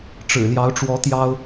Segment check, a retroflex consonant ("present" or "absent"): present